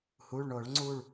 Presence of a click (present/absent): present